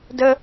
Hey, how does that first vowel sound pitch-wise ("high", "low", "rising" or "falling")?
high